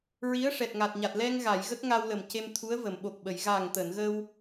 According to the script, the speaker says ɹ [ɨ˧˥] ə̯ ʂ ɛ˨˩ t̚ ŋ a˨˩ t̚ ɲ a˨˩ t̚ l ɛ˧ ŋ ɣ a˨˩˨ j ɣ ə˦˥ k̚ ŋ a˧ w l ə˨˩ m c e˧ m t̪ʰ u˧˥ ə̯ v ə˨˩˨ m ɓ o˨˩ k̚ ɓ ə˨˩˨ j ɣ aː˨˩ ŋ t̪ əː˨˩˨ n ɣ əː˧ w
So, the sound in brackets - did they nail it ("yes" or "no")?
no